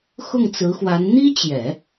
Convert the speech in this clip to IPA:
xʊ˥˩ŋt͡sɹ̩˧˥xwa˧˥n n̪i˥t͡ɕjɛ˨˩˦

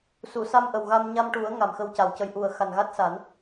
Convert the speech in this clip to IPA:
su˨˩˨sa˧mʔə˨˩wɣa˧m ɲa˧mʈu˨˩˦ə̯ ŋa˨˩mxə˧wca˨˩wcə˧j ʔu˨˩ə̯xa˨˩nɣa˦˥t̚sa˨˩˦n

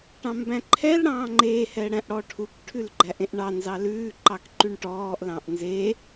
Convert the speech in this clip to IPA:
ʈɑ̃mbæ̃ǃʰɛlɽɑ̃ː ŋ͡ǃehɛ ɽæ̃ʔɽɔʈʰukʈʰʉl ɡ͡ǃæʔẽʔɳɑnzɑ lʉːǃɑk ǃyɳʈɔːʔlɑ̃ʔ nze

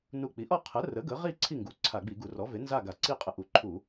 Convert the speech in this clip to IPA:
nu˧˩ k͡pi˩˥ʔɔ˥˨ qʰə˩˥rə˩˥ ɡə˩˥ʁi˥˨ ǀʰi˥˨ŋɡu˩˥ǀʰa˧˩˧ ɡ͡bi˧˩˧ɡu˧˩˧rɔ˩˥ve˩˥ nza˥˨ɡa˧˩˧ǀi˥˨ qʼə˧˩ʔu˧˩˧ǃʰu˧˩˧

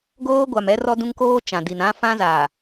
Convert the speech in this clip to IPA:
ɡoː˦ ɡʷa˨mɛ˦ rɔ˦dũ˦ŋkoː˦ t͡ʃã˨di˨n ã˦fã˦zaː˨

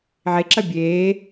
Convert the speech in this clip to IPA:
ʕeǁɐ bʲeː

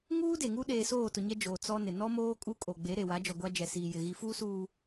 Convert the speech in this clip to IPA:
ŋuː˦de˨ ŋu˦ɗeː˨soː˦˨tʊ˨ ɲɛ˦d͡ʒoː˨ t͡sɔ˦nɪ˨ nɔ˦moː˦ kʼu˦kʼo˨ɡ͡be˨˦ ɾe˨wa˨˦d͡ʒɔ˨ɡʷa˦ d͡ʒɛ˨siː˨jɪ˨ ɣi˨fuː˦suː˨

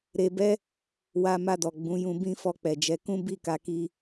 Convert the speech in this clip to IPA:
ɾe˧bɛ˦ | wa˧ ma˧dɔ˨ ɡ͡bũ˨˦jũ˧ bĩ˦fɔ˧k͡pɛ˨d͡ʒɛ˨˦ kũ˦bi˦˨ka˧ki˧

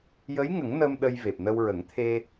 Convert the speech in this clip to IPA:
jə˧˥jŋə˨˩˦ŋ nə˧m ɗə˧jve˨˩p̚nə˧w ɹə˨˩˦ŋ t̪ʰe˧

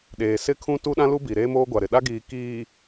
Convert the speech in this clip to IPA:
ɗeː˨sɪ˦kʰũ˦ tu˦ɗã˦lu˦bi˨ ɾeː˦moː˦ɡʷa˨ɾɪ˨ ɗa˦ɡiː˨kiː˨

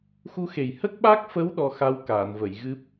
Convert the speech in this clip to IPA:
xu˧xe˨˩j hə˦˥k̚ɓa˦˥k̚fə˧˥w ɗɔ˧xa˧w kaː˨˩˨nvə˨˩˨j ɣɨ˦˥p̚

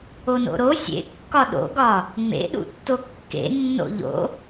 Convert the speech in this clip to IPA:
ono̰ɾo sʲḛ kːɒɗo̰ɡɒ | ŋ͡mḛɗṵtːo kːḛnːo̰ ʎo̰

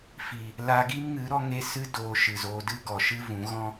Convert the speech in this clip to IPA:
fi˨ | la˧ɡi˦mŋɨ˨˦ ɾɔ˦ŋe˦ sɨ˦ doː˧ ʃɨ˨zoː˧dɨ˦ ɡɔ˨ʃɨ˦vũ˨˦ ɣɔ̃˦

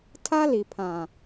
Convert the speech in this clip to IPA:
tʰa˦li˨pʰã˨

